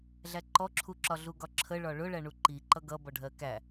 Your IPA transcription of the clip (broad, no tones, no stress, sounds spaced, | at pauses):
ɮ æ ǃ ɔ ǁʰ u ǁ ɒ ɮ u ɡ ɒ ǁʰ ə ɭ ɒ ɭ ʊ ɭ æ ɳ u ǃ i ǃ ʌ ɡ ʌ b ɔ ɖʱ ɜ k æ